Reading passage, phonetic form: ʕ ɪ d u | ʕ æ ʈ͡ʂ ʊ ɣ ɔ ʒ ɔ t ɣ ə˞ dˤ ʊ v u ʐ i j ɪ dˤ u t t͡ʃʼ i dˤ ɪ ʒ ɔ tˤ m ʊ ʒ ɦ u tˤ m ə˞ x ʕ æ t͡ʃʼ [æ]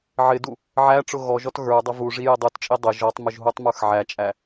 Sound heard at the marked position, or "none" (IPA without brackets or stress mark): æ